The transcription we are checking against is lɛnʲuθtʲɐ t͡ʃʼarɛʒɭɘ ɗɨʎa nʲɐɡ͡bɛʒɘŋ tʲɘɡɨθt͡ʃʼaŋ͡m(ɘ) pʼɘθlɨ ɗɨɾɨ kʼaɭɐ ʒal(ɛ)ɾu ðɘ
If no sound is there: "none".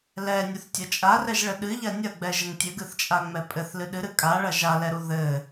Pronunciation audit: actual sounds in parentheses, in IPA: ɛ, ɛ

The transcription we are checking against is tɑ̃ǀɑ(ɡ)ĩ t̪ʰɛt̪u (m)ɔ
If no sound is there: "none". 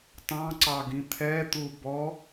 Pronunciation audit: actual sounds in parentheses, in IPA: ɡ, b

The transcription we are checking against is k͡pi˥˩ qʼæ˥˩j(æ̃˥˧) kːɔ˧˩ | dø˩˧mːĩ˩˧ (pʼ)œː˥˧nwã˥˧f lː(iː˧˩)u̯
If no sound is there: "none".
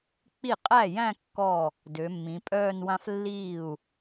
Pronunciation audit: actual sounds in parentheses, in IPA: æ̃˥˧, pʼ, iː˧˩

